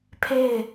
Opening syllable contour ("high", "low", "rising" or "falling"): falling